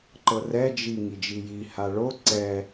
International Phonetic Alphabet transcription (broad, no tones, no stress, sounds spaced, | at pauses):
ǃ ɤ r ɛ d͡ʒ i ŋ i d͡ʒ i j i h a ɭ o ǀ ɛ